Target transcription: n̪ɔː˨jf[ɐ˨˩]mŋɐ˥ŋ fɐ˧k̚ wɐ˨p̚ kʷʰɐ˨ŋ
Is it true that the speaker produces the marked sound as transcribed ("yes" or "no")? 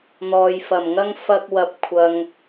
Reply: yes